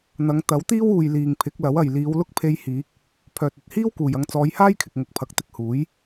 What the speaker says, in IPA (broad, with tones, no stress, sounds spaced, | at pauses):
n̪ ɐ˨˧ ŋ t̪ ɐ˨˥ w t̪ iː˥ w uː˨ j l iː˨ ŋ pʰ ɪ˨˥ k̚ l ɐ˨˥ w ɐ˨ j l iː˨˧ w l ʊ˥ k̚ pʰ e˧ j h iː˨˥ k̚ | pʰ œː˨ t̚ ɵ˧ t̚ h iː˥ w k uː˨ j ɐ˧ ŋ t͡s ɔː˨˧ j h aː˥ j kʰ ɪ˨ k̚ ŋ ʊ˨ k̚ pʰ ɐ˨ k̚ t̪ ɪ˧ k̚ h uː˨˥ j